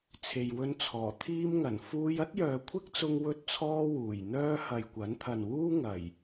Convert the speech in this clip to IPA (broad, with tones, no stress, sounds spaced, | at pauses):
t͡sʰ e˨ j w ɵ˥ n t͡sʰ ɔː˨˩ t̪ʰ iː˥ m ŋ ɐ˨˩ n f uː˥ j ɐ˥ t̚ j œː˨ kʷʰ ɪ˥ k̚ t͡s ʊ˧ ŋ w ɵ˥ t̚ t͡sʰ ɔː˥ w uː˨˩ j n̪ œː˥ h ɐ˨ j kʷ ɐ˨˥ n t̪ʰ ɐ˨ n w uː˥ ŋ ɐ˨˩ j